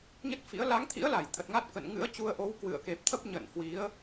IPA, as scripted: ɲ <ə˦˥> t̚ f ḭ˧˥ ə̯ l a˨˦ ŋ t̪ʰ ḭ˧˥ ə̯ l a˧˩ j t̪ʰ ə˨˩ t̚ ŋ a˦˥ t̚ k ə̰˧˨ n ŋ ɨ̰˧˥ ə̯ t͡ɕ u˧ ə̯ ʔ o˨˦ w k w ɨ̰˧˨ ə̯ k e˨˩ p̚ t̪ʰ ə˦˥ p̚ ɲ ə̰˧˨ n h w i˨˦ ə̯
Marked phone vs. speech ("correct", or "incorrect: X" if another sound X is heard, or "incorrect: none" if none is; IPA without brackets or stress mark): correct